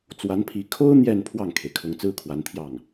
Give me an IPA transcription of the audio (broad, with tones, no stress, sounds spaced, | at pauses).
t͡s w a˧˥ n pʰ i˧˥ kʰ o˥ ʊ̯ n̪ j ɛ˥˧ n pʰ w ɑ˥˩ ŋ kʰ e˩ ɪ̯ kʰ ʊ˧˥ ŋ t͡s ɹ̩˥ kʰ w a˧˥ n t̪ʰ j ɑ˥˩ ŋ